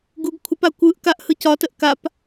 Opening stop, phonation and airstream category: plain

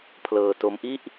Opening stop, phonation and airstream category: aspirated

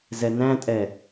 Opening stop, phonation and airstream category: ejective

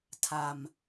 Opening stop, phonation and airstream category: aspirated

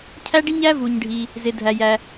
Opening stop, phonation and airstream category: aspirated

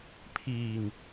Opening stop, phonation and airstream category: aspirated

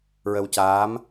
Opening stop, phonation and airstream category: plain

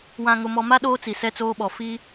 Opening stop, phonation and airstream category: implosive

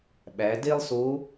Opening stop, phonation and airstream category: implosive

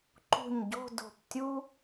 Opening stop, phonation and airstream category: click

